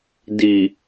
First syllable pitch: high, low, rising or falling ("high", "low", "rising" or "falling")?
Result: low